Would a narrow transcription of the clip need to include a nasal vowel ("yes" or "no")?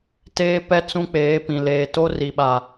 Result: yes